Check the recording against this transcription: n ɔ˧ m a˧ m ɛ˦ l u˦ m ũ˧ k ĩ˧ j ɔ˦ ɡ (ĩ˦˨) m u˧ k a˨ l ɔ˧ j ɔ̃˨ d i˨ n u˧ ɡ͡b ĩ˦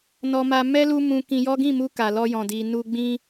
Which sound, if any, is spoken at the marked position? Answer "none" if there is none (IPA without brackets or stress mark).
ĩ˦˨